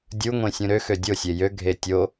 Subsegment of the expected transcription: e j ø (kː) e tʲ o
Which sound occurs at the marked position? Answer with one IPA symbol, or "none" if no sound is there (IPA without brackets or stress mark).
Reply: ɡʱ